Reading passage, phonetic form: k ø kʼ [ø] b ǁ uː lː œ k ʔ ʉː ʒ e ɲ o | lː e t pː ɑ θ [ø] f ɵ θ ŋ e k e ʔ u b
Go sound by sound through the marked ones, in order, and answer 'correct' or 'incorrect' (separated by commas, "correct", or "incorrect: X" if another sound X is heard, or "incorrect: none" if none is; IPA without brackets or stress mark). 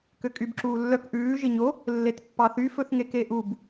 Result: incorrect: y, incorrect: y